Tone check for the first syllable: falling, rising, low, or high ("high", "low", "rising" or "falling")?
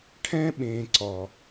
high